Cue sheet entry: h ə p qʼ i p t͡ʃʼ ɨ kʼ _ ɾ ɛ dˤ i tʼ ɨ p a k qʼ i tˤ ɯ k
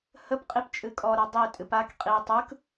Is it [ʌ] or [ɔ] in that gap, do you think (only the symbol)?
ɔ